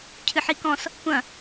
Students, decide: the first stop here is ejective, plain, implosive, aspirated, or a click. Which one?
aspirated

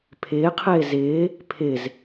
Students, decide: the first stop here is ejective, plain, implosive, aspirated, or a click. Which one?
aspirated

